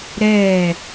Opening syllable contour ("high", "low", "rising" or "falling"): falling